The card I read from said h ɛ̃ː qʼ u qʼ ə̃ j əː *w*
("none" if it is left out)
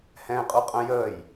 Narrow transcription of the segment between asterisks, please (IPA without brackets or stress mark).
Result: j